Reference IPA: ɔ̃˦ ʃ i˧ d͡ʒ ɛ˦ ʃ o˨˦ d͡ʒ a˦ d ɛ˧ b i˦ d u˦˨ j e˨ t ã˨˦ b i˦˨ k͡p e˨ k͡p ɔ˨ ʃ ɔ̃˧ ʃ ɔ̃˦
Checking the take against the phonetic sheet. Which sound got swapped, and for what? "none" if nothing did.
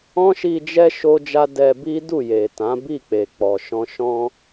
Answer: o˨˦ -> o˦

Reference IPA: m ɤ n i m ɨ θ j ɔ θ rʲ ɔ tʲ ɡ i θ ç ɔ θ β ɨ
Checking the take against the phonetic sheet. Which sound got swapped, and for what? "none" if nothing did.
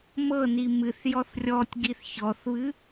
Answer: none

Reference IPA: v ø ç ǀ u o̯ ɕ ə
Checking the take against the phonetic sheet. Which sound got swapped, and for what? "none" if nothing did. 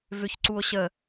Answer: none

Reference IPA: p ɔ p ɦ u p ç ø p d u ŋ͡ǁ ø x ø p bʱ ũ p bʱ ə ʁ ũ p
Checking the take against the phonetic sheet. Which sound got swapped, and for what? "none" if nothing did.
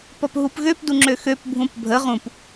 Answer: ç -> ɣ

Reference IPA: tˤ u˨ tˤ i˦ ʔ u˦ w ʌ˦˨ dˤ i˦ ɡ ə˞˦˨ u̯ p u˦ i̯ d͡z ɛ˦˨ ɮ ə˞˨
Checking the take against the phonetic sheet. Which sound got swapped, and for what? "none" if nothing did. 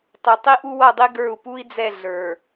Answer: none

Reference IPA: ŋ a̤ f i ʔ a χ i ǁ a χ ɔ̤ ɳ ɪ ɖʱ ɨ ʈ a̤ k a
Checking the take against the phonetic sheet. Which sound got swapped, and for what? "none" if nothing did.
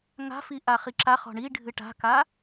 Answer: ɪ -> i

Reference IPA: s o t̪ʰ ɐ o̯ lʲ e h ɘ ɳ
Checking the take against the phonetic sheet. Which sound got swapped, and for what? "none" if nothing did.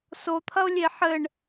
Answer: h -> ħ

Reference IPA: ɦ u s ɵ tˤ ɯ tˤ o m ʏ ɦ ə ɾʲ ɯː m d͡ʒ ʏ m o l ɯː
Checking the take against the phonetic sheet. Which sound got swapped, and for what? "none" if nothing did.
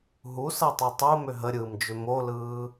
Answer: ɵ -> ɤ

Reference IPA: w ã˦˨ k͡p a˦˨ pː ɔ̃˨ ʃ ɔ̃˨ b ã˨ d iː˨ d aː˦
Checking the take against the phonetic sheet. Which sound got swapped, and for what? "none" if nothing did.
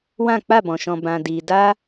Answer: pː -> b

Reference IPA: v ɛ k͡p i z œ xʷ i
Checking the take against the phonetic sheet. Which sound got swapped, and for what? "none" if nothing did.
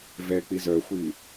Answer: none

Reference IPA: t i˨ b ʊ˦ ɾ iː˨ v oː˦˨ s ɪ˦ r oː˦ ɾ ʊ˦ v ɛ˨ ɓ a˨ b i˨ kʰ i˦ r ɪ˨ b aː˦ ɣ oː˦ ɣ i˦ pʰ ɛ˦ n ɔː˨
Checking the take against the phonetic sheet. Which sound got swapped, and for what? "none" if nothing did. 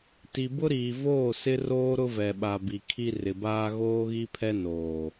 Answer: ɔː˨ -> oː˨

